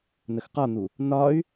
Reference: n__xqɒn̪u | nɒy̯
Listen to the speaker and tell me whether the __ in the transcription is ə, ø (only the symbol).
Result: ə